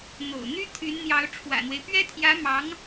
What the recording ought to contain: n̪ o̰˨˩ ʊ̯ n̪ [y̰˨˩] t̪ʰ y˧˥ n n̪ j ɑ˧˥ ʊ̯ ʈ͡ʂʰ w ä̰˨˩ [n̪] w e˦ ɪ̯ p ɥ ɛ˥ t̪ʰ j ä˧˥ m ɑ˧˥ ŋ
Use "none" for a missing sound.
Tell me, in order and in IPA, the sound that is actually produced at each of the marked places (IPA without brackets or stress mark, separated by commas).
y˥, n̪